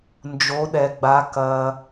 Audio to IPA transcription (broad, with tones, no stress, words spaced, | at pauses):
nd͡ʒo˩˧ɗɛ˩ɡ͡ba˩˧ kɐ˩